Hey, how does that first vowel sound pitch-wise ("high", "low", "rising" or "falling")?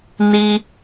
high